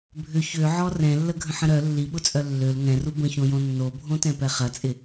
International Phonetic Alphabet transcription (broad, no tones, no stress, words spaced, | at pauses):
bʱʏ çøʕɔ rɛ̃lːəɡʱə̃ħə̃ ɾœ lːiɓʊt͡sʼœ lːøl ŋɛ̃ru bə̃çõjõ nːobʱõtɛ̃pɛ χɐt͡sʼɪ